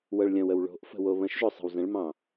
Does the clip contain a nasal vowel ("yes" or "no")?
yes